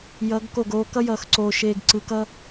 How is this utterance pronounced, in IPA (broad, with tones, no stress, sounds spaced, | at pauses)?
j ʌ˨˦ ɡ k o˦˨ ɡ oː˦ k ʌ˦ j ʌː˨ x ǀ oː˨ ʃ eː˨ ɡ ǀ ɯ˨ k ʌ˦